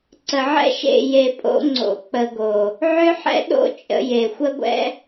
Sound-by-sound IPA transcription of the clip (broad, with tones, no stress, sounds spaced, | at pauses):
ǀ ə˨ ʕ ɛ̰˦ ʃ ḛ˦˨ j e˨ pʼ o̰˧ ŋ͡ǀ o̰˧ k͡p ə˧ ɡ o˨ | ʕ ʏ˦ ħ ɛ̰˦ ɗ o̰˦ t͡ʃʼ ə̰˧ j e˨ xʷ ə˦ ɡʷ ɛ̰˦